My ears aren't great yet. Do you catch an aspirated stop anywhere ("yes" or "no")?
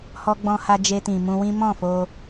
no